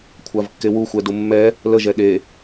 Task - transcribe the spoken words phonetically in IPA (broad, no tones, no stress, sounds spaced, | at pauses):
kʷʰ a v kː e w u xʷ ɛ d u mː ɛ | l ə ʒ ɛ ɗ e